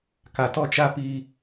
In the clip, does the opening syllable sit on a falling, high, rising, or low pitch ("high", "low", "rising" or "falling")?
low